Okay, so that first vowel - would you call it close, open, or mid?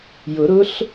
close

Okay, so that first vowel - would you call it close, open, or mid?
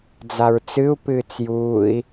open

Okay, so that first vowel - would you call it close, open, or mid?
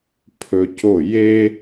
mid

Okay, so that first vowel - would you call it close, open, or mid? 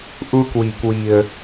close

